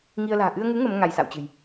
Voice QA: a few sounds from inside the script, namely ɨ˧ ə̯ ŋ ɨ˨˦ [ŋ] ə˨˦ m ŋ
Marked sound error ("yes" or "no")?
no